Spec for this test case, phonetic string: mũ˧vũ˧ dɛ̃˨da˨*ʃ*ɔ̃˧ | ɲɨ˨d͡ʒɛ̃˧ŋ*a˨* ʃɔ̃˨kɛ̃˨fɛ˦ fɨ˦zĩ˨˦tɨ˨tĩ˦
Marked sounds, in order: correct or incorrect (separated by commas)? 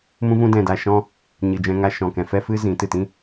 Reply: correct, incorrect